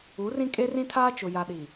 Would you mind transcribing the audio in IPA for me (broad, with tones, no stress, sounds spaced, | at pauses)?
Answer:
u˨˦ r ĩ˦ kʼ e˦ r ĩ˦ tʰ aː˦ t͡ʃ ʊ˨ j a˨ ɗ i˨